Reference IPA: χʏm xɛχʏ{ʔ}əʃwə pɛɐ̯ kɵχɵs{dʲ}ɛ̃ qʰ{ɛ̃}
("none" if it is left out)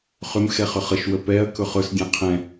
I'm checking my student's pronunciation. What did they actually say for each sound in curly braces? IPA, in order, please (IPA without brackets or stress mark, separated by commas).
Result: χ, dʲ, ɛ̃